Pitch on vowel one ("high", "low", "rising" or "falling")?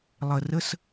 low